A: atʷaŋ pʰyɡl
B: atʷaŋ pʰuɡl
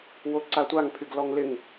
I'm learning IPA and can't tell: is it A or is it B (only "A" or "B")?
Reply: A